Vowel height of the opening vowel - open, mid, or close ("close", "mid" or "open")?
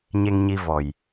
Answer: mid